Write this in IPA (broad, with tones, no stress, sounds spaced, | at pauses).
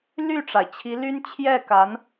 l y˥˩ ʈ͡ʂ a˩ ɪ̯ t͡ɕʰ i˧˥ l y˥ n t͡ɕʰ j ɛ˥˩ k a˧˥ n